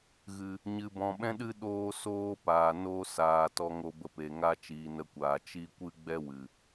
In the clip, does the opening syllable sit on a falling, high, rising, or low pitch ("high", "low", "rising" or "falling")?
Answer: low